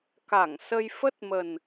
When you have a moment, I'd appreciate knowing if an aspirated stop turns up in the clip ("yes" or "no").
no